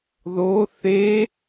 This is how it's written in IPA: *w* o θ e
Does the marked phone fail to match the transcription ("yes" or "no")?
yes